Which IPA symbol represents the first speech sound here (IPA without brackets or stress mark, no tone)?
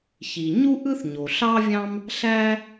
ç